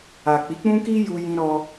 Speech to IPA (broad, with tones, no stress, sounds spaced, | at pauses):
a˨ k͡p i˨˦ k͡p ũ˦ k i˦ j u˧ j ĩ˧ ɾ ɔ˧